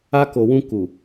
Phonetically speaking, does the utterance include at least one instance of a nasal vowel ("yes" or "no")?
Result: yes